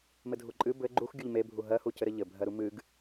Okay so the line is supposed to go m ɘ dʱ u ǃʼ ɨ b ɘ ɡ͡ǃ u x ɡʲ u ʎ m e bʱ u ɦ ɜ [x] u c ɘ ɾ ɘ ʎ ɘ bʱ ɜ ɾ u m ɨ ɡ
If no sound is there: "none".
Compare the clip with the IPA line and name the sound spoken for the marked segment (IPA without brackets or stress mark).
h